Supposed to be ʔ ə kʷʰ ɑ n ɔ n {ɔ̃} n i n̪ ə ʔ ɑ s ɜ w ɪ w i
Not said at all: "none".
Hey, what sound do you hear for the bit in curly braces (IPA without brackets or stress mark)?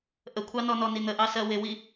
ɔ